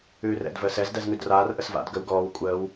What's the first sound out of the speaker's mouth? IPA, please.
ʉː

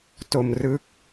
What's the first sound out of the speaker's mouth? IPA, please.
t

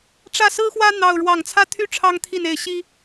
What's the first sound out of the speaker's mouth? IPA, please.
ʈ͡ʂ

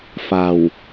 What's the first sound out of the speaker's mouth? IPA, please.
f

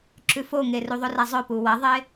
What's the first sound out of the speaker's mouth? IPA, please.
ǁ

